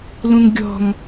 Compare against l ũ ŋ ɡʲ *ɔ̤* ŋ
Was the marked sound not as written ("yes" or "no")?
no